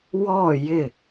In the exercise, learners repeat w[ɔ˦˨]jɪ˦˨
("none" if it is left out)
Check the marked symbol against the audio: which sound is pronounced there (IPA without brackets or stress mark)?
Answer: ɔ˦˨